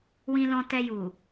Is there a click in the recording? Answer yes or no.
no